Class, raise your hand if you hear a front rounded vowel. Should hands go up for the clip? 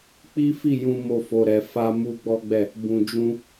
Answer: no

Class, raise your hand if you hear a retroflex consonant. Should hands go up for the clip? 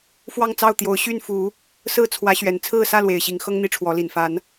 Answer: yes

